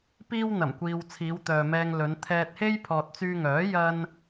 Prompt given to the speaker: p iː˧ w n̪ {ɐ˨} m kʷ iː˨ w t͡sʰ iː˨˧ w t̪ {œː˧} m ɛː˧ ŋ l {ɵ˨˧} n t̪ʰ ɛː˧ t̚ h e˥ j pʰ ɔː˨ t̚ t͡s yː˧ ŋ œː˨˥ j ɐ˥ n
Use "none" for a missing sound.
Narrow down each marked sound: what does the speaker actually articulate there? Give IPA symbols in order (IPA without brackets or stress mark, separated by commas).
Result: ɐ˨˩, œː˨, ɵ˨˧